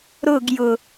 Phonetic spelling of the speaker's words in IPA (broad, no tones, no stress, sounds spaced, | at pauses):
ɾ ʊ ɡ j ʊ